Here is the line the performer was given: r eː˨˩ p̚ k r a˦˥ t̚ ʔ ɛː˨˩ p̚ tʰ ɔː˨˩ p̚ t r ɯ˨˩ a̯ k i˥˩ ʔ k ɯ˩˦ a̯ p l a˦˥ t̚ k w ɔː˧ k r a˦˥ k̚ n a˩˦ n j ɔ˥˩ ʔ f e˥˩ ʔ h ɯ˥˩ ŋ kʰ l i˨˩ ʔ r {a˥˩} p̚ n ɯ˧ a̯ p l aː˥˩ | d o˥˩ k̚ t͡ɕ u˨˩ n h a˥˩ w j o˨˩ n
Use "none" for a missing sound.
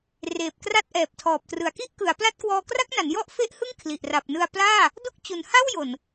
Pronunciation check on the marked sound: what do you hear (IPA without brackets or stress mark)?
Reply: a˨˩